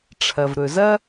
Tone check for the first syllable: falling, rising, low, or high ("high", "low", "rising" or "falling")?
low